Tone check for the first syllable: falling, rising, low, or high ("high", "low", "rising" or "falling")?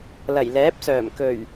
low